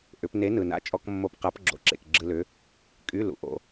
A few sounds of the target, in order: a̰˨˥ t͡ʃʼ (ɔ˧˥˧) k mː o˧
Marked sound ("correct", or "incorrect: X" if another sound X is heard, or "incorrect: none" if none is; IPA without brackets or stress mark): correct